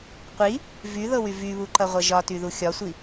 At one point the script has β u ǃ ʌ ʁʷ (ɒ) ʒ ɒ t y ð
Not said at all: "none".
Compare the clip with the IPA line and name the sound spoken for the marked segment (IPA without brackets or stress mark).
ʌ